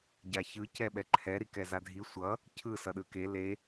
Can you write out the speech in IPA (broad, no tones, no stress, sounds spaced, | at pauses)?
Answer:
ɟ a ç ɯ c ɛ ɓ ɛ ǃʰ ɛ ɾ i k ɛ z a dʱ i sʷ ʌ | cʰ ɯ s ʌ ɗ ɯ k e l e